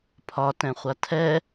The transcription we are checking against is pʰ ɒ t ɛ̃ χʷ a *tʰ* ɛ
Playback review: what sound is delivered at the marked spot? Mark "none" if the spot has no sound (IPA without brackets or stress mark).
tʰ